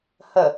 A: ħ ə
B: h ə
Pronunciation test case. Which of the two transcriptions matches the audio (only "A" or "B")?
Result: B